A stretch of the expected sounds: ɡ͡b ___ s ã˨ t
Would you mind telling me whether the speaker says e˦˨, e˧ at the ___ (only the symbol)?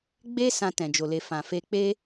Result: e˧